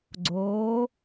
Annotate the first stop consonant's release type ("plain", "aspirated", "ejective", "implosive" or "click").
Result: click